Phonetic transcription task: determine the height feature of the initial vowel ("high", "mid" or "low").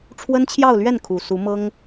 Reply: mid